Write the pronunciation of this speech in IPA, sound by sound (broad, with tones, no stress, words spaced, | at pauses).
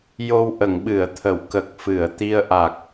jo˧wʔə˨˩˨ŋɓɨ˨˩˨ə̯t̪ʰə˨˩˨w kə˨˩k̚fɨ˨˩˨ə̯ t̪i˧ə̯ʔa˨˩k̚